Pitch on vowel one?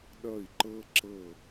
falling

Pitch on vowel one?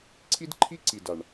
high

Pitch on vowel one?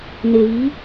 low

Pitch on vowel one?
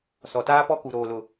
low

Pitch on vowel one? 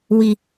high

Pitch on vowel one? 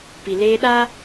low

